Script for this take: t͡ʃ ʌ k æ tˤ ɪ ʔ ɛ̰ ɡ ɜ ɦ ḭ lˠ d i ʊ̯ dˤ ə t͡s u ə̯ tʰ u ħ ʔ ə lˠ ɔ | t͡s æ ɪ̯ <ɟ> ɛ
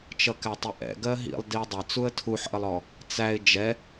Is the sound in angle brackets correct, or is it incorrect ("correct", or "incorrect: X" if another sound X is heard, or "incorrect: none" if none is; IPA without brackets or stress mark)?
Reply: incorrect: d͡ʒ